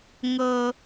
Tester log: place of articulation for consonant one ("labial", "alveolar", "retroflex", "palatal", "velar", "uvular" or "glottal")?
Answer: velar